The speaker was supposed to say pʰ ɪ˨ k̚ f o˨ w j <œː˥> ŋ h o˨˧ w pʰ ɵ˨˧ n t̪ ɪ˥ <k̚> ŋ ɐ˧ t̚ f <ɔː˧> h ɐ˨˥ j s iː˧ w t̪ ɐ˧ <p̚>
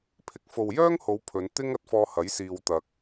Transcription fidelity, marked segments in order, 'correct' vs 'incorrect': correct, incorrect: none, correct, incorrect: k̚

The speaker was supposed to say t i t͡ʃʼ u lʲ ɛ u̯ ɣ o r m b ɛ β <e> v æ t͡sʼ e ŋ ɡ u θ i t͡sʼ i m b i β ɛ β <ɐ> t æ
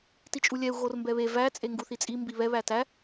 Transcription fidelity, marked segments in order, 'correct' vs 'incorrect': correct, incorrect: æ

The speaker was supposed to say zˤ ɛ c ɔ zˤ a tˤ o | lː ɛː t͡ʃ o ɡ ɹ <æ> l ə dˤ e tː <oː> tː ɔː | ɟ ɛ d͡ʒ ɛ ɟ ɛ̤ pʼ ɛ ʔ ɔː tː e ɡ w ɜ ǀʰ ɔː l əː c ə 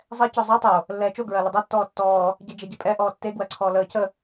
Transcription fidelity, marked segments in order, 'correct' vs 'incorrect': incorrect: ɜ, incorrect: ɔː

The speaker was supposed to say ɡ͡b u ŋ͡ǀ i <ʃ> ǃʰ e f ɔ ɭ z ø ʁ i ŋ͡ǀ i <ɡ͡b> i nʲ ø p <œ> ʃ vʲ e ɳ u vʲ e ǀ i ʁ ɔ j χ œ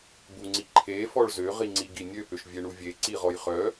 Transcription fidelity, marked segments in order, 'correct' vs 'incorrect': incorrect: none, incorrect: ɡ, incorrect: ø

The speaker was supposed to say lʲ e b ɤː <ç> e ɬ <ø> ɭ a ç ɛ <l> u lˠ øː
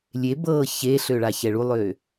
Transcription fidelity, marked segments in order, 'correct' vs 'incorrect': correct, correct, incorrect: ɭ

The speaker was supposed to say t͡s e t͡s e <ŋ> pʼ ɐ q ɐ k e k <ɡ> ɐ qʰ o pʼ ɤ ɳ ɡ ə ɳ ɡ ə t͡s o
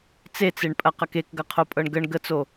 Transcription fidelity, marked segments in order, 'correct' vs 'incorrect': incorrect: ɳ, correct

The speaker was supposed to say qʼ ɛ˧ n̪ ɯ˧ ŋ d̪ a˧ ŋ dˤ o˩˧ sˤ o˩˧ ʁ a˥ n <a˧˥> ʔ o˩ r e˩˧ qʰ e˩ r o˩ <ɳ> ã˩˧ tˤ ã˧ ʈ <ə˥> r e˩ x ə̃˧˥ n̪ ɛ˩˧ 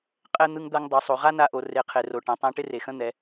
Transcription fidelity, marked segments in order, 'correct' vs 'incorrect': correct, incorrect: ʈ, incorrect: ɪ˥

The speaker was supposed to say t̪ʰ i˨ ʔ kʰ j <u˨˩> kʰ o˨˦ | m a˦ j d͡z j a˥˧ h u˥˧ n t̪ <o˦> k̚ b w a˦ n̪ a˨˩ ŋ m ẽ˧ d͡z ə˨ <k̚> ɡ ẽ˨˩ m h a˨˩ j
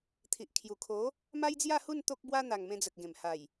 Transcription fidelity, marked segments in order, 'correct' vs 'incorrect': correct, correct, correct

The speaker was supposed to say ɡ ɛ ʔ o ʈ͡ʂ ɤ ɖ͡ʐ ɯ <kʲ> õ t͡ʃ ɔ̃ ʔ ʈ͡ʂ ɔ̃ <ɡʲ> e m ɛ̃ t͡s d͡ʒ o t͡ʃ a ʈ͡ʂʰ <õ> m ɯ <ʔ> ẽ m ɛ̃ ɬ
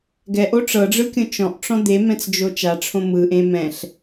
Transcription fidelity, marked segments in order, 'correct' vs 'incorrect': correct, incorrect: d̪, correct, correct

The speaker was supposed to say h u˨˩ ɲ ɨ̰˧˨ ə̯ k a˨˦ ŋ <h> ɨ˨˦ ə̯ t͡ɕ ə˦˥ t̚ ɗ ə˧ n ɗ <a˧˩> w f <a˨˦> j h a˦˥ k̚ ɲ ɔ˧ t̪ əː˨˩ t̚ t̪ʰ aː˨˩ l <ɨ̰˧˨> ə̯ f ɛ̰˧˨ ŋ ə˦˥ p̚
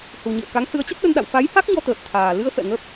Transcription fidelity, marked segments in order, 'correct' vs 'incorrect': correct, incorrect: a̰˧˨, correct, incorrect: ɨ˧

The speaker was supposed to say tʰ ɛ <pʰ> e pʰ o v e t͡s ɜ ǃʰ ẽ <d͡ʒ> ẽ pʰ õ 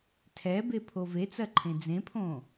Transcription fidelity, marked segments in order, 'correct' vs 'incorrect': incorrect: b, incorrect: d͡z

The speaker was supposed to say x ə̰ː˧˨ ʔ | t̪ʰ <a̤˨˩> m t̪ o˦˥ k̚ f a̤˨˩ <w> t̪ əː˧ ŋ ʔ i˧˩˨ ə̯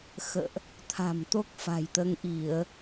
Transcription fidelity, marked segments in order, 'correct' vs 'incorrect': correct, incorrect: j

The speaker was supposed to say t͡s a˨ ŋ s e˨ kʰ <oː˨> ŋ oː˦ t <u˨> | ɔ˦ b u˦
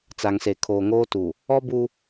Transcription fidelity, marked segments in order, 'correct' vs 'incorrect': correct, correct

